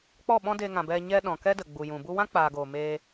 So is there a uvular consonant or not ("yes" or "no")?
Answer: no